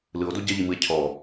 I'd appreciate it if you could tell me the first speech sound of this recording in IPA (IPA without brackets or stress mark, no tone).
l